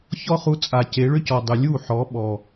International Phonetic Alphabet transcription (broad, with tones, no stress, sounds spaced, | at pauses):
ç ɔ˦ χ u˧ t͡sʼ a˨ c e˨˦ ɭ ʏ˦ c ɔ˨ dˤ ʏ˨ lʲ u˦˨ ħ ɔ˨˦ ɓ ɔ˨